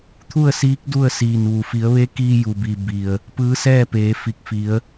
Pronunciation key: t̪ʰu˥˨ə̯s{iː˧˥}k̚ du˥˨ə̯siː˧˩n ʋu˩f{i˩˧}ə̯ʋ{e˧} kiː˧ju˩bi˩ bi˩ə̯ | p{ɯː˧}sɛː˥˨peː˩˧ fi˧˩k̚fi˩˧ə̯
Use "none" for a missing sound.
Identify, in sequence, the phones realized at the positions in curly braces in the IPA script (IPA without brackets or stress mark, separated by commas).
iː˧˥, i˩˧, e˧˥, ɯː˧˥